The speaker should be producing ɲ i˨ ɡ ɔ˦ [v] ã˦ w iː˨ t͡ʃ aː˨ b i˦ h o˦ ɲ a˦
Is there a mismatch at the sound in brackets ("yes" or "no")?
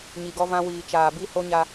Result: no